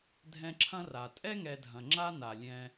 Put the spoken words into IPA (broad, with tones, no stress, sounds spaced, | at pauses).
dʱ ɛ̃˦ ǁʰ ɐ̃˥ r a˩ tʼ ɛ˥ ŋ ɛ˨ dʱ ɐ̃˩ ŋ͡ǁ a˥ n a˩ lʲ ɛ̃˨